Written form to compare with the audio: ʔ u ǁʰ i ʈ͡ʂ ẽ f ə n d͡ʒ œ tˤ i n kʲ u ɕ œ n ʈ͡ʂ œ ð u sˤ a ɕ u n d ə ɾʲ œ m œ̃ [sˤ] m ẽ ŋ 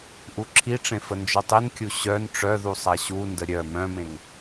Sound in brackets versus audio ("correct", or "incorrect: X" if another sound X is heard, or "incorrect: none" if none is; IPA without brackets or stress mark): incorrect: none